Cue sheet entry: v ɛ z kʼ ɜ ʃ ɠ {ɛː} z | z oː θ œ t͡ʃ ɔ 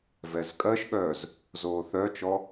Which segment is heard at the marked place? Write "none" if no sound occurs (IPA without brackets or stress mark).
œː